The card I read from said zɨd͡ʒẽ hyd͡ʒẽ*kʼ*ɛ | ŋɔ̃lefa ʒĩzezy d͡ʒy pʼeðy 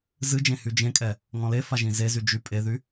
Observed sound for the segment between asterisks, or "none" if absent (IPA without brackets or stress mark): kʼ